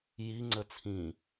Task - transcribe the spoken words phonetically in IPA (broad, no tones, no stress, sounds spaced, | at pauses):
j i ŋ͡ǀ ə t͡sʰ ĩ